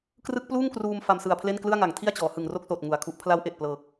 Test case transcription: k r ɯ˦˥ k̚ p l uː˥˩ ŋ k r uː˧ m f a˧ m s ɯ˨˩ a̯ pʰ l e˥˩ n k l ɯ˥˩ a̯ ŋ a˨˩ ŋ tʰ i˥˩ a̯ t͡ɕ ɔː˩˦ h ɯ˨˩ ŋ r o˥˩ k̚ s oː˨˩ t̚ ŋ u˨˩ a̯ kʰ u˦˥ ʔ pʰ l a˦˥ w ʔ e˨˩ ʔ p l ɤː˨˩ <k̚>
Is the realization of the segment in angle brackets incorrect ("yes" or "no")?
no